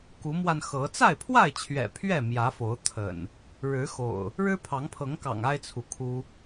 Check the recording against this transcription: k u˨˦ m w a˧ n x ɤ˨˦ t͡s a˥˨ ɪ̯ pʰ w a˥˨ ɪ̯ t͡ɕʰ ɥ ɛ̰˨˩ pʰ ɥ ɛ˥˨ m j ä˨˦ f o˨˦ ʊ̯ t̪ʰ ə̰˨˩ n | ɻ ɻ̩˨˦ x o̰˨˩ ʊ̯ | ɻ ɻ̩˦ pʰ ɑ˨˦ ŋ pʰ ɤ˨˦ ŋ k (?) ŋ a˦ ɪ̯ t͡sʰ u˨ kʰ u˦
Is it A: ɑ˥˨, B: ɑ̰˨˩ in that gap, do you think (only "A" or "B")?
B